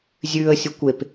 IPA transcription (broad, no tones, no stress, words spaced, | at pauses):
zʲʉə̯ sʲukʷep